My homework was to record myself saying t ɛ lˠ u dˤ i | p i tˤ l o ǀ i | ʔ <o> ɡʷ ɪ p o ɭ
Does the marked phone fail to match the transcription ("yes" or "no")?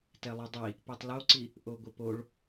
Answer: no